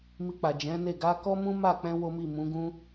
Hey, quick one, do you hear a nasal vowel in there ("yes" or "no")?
yes